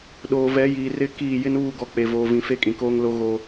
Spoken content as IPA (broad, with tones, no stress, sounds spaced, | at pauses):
ɗ oː˨ v ɛ˨˦ j iː˨ r ɪ˦ k iː˦˨ j ɪ˦ n uː˦˨ ɡ ɔ˨ k͡p e˨ v oː˨ v ĩ˨ f e˦ kʼ ĩ˨ k oː˦ ŋ l o˦ ɣ o˦